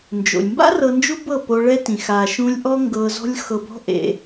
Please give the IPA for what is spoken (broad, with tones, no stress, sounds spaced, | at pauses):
n d͡ʒ o̰˨ lʲ m b a̰˦ r ɤ˧ n d͡ʒ u˦ b ɤ˦˨ p o˧ ɭ ɛ˦ t ĩ˨ x a˨ ʃ ũ˧ lʲ ʔ ɔ˦ ŋ ɡ ɤ˧ z ɔ̤˦ lʲ x ɤ˧ b ɔ̤˦ ʔ ḛ˧